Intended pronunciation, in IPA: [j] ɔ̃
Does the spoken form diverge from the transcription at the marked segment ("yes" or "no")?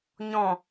yes